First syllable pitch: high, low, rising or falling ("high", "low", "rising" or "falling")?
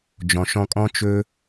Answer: low